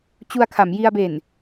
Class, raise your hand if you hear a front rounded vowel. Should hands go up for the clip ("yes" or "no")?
no